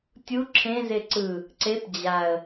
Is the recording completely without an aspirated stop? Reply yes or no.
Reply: no